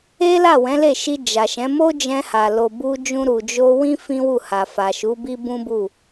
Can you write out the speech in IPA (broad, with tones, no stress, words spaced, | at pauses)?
e˦la˦˨ wɛ̃˨˦le˦˨ʃi˧ d͡ʒa˨ʃɛ̃˨˦ mo˦d͡ʒɛ̃˧ha˨ lo˨bu˧d͡ʒũ˧ɾu˨ d͡ʒo˧wĩ˦ fĩ˦wu˦˨ha˨ fa˨ʃu˨˦bi˦ bũ˦bu˦˨